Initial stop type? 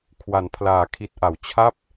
aspirated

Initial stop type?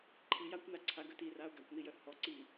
click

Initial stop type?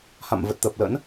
plain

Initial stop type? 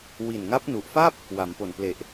plain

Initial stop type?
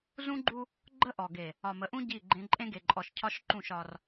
click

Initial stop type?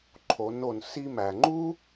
click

